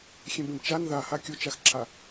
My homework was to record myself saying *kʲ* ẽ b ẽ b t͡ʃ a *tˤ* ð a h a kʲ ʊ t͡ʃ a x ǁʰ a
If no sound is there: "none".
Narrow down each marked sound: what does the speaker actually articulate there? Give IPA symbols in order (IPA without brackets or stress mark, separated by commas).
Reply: xʲ, n